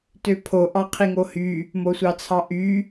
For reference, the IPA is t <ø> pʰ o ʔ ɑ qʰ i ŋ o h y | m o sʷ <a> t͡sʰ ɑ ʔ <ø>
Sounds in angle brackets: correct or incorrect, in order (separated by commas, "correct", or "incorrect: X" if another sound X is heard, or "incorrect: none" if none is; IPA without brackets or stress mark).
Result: correct, incorrect: ɑ, incorrect: y